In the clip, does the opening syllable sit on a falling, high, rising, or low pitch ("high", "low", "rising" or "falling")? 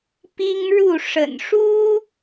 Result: high